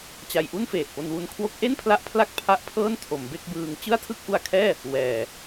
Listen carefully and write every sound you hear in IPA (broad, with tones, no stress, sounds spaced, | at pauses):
t͡ɕ a˧ j ʔ u˥˩ n f eː˨˩ t̚ p o˧ n w u˧ n kʰ w o˦˥ k̚ ʔ e˥˩ n pʰ l a˦˥ ʔ pʰ l a˥˩ k̚ pʰ a˦˥ ʔ pʰ ɤː˥˩ n tʰ o˩˦ m b e˥˩ k̚ b ɯː˧ ŋ t͡ɕ ɯ˥˩ a̯ tʰ ɯ˥˩ k̚ ʔ u˧ a̯ kʰ ɛː˥˩ | w ɛː˨˩